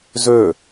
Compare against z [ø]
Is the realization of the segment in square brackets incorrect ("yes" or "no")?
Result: no